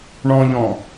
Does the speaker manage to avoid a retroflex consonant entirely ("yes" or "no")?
no